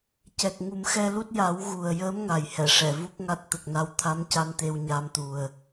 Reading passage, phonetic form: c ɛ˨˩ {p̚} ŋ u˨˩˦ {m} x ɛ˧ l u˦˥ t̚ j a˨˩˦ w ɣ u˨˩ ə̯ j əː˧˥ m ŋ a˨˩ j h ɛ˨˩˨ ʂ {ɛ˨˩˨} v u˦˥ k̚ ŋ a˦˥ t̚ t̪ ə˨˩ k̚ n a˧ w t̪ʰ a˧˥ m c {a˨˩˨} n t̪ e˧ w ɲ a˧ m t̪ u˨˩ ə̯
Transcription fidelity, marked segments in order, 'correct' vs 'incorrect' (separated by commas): incorrect, correct, correct, incorrect